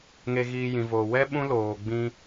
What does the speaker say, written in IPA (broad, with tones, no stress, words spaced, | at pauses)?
ŋe˧ɣiː˧jĩ˨voː˨ wɛ˦ ɓũ˦loː˨ ɡ͡bĩ˧